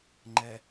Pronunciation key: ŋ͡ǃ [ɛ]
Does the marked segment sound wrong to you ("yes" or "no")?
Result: no